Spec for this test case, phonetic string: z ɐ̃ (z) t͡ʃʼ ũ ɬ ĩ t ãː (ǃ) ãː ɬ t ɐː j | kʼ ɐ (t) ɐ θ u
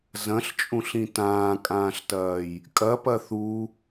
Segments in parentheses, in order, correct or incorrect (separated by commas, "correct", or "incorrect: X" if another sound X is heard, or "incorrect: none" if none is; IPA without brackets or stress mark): incorrect: ɬ, incorrect: kʼ, incorrect: p